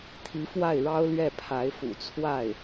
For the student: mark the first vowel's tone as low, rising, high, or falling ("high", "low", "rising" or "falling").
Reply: rising